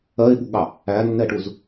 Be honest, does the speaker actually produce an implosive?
yes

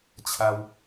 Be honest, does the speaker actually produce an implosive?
no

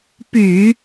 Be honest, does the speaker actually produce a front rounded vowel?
yes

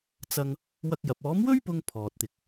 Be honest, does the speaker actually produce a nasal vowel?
no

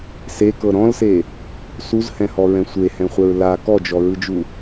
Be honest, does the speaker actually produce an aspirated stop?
no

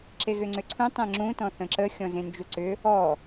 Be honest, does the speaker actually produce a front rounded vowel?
yes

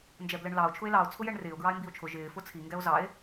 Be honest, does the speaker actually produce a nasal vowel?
no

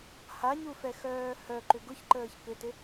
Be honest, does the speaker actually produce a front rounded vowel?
yes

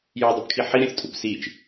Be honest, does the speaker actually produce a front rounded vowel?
yes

